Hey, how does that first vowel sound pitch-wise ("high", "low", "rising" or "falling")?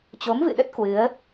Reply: rising